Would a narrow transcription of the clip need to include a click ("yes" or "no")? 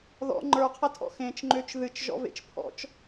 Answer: yes